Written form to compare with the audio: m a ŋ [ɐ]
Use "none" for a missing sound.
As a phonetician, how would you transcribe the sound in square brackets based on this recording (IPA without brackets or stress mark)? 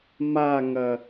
ɐ